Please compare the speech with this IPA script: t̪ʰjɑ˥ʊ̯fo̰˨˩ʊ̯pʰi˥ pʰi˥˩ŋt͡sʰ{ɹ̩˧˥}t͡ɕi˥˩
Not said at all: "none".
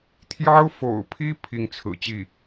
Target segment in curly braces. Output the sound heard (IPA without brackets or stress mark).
ɹ̩˨˩